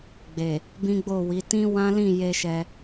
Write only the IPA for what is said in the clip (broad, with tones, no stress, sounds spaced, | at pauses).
ɡ͡b e˨ | b ĩ˦ ɡ͡b o˦˨ w i˨˦ t ĩ˦ w ã˦ l ĩ˦˨ j e˧ ʃ ɛ˧